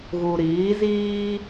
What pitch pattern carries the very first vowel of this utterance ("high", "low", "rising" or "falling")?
low